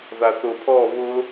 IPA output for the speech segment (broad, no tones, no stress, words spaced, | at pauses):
ðaθʊ pʰɔ βʊ